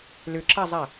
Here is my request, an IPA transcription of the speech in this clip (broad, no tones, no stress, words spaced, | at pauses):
lʏǁazˤa